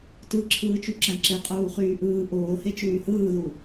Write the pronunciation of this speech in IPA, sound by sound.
t ɯ ǁʰ ɯː t͡ʃ y ǁ æ̃ ǁ e qʼ uː χ yː ʔ ɯː ʔ oː h e t͡ʃ yː h ɯː ð u

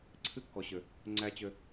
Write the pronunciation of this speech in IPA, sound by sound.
ǀʰ ɨ˦ kː ɔ˨ ɕ ø˨ | ŋ͡ǀ æ˦ t͡ɕ ø˧

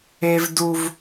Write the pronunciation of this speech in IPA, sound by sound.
e˦ v d u˦ v

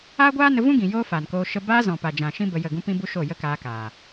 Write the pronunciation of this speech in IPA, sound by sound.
aː˦ ɡʷ aː˦ n ə˧ v ũ˦ ɡ ĩ˨ j oː˦ f aː˨ n k oː˧ ʃ ə˦ b aː˧ z ɔ̃˨ p a˨ d͡ʒ ã˨ ʃ ĩ˦ b ə˧ j ə˦˨ ɡ ũ˦ p ĩ˦ b u˦ ʃ o˦˨ j ə˦ k aː˧ k aː˨

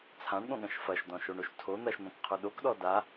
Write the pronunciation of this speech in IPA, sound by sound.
t͡sʰ ã ɳ ɠ õ ɠ ɐ̃ ʃ f ɐ ʃ d ɔ̃ ʃ o ɳ o ʃ tʰ o n̪ ɐ ʃ n̪ ɔ̃ k qʰ o ɗ o k ɗ ɔ d a

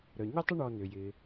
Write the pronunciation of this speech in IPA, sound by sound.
ɾ œ˩ ɲ ʏ˥ tˤ ɪ˥ ɳ ɔ˧ n ʏ˩ j ɪ˩

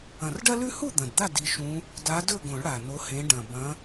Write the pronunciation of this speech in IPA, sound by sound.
ɐ̃˨˩ r ɖ ɐ˦ l ʉ˦ h u˥˨ d̪ ɐ̃˨˩ d d̪ a˥˨ d i˨˦ ʃ ũ˨˦ | d a˨˦ d ɵ˥˨ ɡ õ˨˩˦ ɭ ɽ a˨˩ n o˨˦ h ẽ˨˦ ɖ ɐ̃˨˩ b ɐ̃˨˦

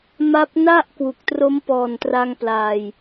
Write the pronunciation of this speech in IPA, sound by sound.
m a˦˥ p̚ n a˥˩ ʔ k w u˨˩ k̚ t r o˦˥ m p ɔː˨˩ n t r a˧ ŋ p l aː˧ j

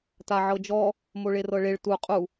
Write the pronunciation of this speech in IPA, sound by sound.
t a ʕ ɤ d͡ʒ ɔ | m o ɭ e r ɤ ɭ e ɭ t u qʼ u

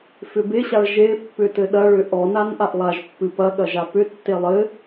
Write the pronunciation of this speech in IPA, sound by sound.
f ʏ b e ɕ a ɭ ʒ e pː ʏ t ɘ ɗ ɐ ɭ ʏ ʔ ɔ n a n ʔ a ʔ lˠ a ʒ pː ɨ p ɐ ɠ ɐ ʒ a p ʏ tː e lˠ ɘ

